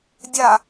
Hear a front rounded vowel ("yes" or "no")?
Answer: no